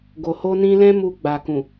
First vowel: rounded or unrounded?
rounded